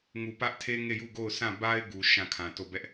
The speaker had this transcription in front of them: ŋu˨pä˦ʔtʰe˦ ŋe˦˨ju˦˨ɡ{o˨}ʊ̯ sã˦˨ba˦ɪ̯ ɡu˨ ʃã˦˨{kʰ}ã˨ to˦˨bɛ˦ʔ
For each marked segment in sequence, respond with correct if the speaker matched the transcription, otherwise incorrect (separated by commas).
incorrect, correct